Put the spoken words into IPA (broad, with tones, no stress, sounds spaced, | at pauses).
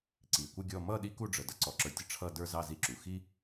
ǀ i˨ kʷ ə˥˧ ɡʲ ɔ˥˧ m ʌ˥˧ ɗ i˥ k u˥˧ ɖ͡ʐ ə˨ d ʌ˥ ǀ ɔ˩˥ ǁ ə˞˨ tʲ ə˥˩ ʈ͡ʂʰ ʌ˥˧ d ə˞˥˧ z ɑ˥˧ z i˥˧ ǁ u˩˥ x i˥